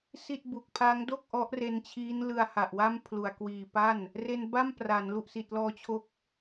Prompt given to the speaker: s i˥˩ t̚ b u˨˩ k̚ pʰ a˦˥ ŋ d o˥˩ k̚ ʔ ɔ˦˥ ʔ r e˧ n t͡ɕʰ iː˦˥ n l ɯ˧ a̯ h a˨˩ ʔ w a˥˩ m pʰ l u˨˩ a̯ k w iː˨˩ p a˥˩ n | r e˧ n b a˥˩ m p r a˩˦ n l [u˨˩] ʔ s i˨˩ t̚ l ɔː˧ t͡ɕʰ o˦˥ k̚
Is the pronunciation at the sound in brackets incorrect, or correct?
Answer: correct